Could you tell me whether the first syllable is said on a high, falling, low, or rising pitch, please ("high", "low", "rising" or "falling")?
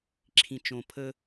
low